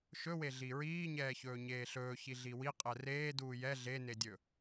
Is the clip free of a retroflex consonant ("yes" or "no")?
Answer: yes